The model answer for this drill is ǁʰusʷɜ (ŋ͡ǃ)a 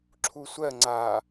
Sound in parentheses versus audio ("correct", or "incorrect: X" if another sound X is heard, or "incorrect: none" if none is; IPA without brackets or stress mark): incorrect: ŋ͡ǀ